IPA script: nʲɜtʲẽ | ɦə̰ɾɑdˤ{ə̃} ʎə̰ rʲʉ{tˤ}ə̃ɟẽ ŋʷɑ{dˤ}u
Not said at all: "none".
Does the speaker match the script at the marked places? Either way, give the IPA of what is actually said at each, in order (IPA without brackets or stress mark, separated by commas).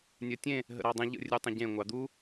ə̃, tˤ, d̪